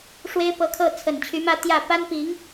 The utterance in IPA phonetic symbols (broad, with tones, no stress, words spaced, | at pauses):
ʂwe˥ɪ̯pɤ˧˥kʰɤ˥˩ t͡sʰə˨˩nt͡ɕʰy˧˥mä˥˧ t̪jä˥˩ pa˥npi˧˥ŋ